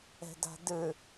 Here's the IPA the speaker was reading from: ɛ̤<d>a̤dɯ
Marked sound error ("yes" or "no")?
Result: no